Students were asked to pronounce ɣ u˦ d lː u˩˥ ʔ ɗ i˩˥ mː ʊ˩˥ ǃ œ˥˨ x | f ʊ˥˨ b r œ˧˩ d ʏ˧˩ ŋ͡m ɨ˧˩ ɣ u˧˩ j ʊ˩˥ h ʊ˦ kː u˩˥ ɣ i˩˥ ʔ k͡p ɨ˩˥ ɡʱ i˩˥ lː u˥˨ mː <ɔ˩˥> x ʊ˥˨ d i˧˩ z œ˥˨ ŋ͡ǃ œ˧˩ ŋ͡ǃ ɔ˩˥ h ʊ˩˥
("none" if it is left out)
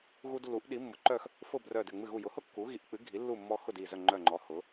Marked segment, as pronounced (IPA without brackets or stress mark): ɔ˦